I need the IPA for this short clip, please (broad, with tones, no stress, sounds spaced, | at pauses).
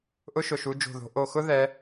ʔ ʊ˥ ʃ ʊ˧˩ ʃ u˨˦ d͡ʒ o̤˧˩ ð o̤˨˦ ʔ o˧˩ x ʊ˥ ð ɛ˨˦